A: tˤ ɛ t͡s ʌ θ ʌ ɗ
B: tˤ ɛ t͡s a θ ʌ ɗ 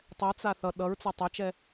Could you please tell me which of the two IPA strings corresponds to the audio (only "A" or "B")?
B